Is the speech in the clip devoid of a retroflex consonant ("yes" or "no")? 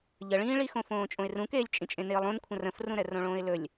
no